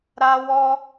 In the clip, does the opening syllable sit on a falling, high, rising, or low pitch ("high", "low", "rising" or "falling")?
high